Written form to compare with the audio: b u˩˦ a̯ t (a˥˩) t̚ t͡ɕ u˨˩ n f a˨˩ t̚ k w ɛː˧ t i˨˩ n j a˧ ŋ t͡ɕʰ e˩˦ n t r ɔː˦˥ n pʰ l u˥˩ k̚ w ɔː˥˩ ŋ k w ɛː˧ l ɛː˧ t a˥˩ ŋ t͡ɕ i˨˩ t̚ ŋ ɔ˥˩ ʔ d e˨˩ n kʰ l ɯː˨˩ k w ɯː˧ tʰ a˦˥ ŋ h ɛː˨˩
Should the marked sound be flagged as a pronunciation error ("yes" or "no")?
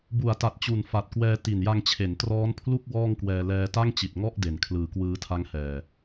yes